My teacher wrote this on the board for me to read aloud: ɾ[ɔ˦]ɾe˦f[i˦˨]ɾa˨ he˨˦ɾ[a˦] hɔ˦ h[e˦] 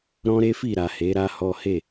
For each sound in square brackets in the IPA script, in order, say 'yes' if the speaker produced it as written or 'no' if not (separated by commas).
no, yes, yes, no